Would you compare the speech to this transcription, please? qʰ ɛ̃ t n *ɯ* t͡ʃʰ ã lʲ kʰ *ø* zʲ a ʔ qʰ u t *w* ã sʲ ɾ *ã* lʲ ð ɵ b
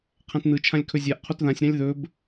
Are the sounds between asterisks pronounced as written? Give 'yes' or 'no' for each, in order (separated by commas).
yes, no, no, yes